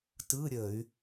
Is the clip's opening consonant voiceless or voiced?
voiceless